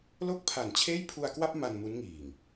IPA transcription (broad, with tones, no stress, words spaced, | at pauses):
lo˥˩k̚pʰa˨˩nt͡ɕʰeː˥˩j pʰu˧a̯kwa˥˩p̚ ma˧nmu˦˥nŋiː˨˩ŋ